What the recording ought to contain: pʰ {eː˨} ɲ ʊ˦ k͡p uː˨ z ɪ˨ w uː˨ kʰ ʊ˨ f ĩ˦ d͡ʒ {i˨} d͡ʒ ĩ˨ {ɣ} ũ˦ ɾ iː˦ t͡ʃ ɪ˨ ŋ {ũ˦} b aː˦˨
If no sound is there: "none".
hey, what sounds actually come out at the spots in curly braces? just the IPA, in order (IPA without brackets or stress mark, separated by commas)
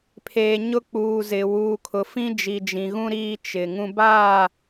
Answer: eː˨, i˨, ɣ, ũ˦